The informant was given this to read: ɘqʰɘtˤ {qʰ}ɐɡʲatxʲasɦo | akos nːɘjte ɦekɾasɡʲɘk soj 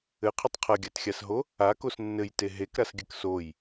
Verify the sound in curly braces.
correct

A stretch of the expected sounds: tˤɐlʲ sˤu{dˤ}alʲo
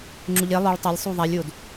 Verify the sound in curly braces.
incorrect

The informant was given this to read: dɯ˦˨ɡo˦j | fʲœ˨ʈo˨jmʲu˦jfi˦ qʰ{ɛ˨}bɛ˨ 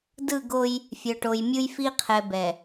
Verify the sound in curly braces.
correct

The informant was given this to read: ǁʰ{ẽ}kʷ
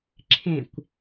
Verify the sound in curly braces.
correct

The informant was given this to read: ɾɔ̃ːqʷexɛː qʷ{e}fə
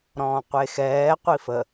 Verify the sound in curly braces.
incorrect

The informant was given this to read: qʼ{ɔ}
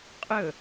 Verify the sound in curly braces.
incorrect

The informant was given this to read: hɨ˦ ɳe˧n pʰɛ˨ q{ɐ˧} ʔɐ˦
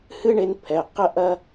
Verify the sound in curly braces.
incorrect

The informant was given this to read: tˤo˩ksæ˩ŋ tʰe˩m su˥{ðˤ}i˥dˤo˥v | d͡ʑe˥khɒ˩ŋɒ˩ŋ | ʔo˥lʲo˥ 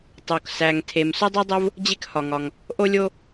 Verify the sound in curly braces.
incorrect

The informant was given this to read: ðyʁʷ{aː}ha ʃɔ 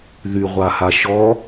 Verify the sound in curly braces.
incorrect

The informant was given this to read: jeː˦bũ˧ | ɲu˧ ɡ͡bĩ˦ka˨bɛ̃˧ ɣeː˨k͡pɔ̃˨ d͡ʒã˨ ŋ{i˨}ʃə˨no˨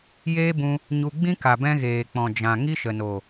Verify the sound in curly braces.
incorrect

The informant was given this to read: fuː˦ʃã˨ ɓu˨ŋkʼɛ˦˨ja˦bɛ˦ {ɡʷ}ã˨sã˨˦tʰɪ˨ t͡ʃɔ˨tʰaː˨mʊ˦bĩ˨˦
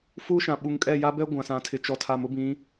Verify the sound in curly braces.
correct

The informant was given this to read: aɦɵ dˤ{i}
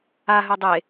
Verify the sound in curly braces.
incorrect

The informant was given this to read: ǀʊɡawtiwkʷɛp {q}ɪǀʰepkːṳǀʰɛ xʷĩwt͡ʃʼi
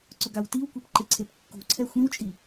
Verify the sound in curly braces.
incorrect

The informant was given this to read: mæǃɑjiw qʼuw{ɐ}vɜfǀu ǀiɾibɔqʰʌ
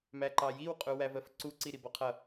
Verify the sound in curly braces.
incorrect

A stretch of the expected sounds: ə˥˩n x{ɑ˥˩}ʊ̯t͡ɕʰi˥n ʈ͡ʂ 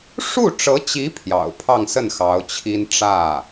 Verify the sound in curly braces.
incorrect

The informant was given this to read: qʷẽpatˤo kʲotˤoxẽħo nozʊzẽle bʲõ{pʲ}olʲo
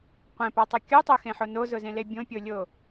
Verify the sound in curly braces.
correct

